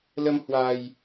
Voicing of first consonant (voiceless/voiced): voiced